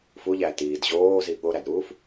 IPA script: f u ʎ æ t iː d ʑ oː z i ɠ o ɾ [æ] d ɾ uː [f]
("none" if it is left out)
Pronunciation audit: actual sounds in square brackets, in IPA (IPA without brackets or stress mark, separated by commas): æ, f